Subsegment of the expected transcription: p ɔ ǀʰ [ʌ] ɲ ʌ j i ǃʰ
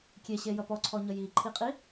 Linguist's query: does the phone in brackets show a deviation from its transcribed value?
yes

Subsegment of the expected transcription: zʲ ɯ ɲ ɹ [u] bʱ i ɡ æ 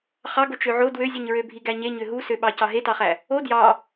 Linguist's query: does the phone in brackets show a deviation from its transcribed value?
yes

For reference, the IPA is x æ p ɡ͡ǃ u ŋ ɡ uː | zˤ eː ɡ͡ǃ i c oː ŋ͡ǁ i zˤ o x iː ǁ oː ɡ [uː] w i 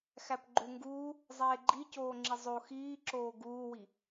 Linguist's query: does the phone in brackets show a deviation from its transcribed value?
no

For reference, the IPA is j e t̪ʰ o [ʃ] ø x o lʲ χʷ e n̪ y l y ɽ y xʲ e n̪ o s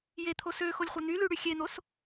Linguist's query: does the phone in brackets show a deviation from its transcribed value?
yes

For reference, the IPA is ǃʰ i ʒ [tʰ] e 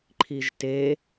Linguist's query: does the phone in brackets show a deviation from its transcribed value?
yes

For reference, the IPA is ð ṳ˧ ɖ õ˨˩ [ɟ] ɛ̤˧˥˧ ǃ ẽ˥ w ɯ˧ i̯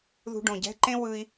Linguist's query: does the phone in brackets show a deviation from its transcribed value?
no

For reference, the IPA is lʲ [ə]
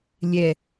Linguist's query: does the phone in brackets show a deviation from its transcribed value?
yes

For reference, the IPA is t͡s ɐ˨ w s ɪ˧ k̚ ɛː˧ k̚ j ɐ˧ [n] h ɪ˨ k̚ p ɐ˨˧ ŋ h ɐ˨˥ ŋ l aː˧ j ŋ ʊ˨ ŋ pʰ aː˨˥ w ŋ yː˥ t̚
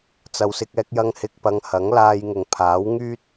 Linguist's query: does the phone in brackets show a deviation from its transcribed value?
yes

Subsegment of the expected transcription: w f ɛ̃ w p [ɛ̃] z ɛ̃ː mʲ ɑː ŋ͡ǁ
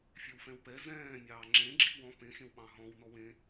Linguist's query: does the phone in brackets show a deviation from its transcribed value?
yes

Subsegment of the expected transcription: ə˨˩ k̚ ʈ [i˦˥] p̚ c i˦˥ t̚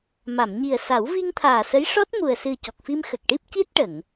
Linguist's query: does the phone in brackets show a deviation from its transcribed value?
no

